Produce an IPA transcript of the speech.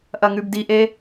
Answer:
ʔ ɐ ŋ ʉ b d i ʔ e

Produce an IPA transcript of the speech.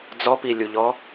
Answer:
d͡z ɔ p i lʲ u ʎ ɔ

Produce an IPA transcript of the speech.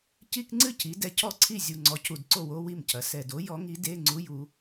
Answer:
c i˧˥˧ k ŋ͡ǀ ɨ˥˩ cʰ i˩˧ d ɛ˩˧ cʰ ɔ˥˩ ǀʰ i˥˩ zʲ u˨˩ ŋ͡ǀ ɔ˩˧ cʰ u˨˩ d ǀ o˥˩ w o˧˥˧ w i˥˩ m cʰ ɐ˩˧ s ɛ˨˩ d o˧˥ j ɔ˧˥ ŋ i˧˥ d e˧˥˧ ŋ͡ǀ u˧˥˧ j u˩˧

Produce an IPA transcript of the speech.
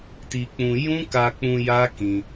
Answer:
t i˧ k͡p ũ˧ j ũ˦ k a˧ k͡p ũ˧ j a˦ k ĩ˧

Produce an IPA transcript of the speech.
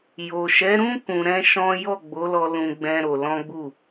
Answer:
j o˨ ʃ ɛ˨˦ ɾ ũ˦ k ũ˧ ɾ ɛ̃˦ ʃ ɔ̃˦ j ɔ˦˨ ɡ͡b o˨˦ l ɔ˧ l ũ˦ ɡ͡b ɛ̃˦ ɾ o˧ l ɔ̃˦ ɡ͡b u˦˨

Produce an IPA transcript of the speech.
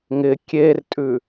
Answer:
ŋ ɪ kʲ e r tʼ ʉ

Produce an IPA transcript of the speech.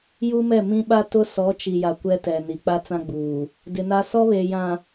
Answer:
j u˦ m ɛ˦˨ m ĩ˦ ɓ a˦ t ʊ˦ s ɔ˨˦ t͡ʃ i˨ j a˨ kʷ ɛ˦ t ɛ˨ n i˨ k͡p a˦ t͡s ã˦ ɡ͡b uː˨ | d ɪ˨ n a˦ s ɔ˦ β eː˨ j ã˨

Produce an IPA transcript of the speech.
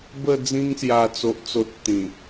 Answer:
b ə˥˧ d͡z ĩ˧ ŋ s j a˨˩ t͡s o˨ ʔ t͡s o˨ t̚ t̪ ĩ˨˩

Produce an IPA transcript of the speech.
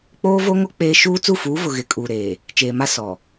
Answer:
k͡p oː˦ v o˦ ŋ o˦ k͡p eː˦ ʃ uː˦ t͡s u˦˨ f uː˨˦ v ʊ˨ ɣ ɪ˨˦ kʼ uː˨ ɾ eː˨ | t͡ʃ eː˨ m a˦ s ɔ˨

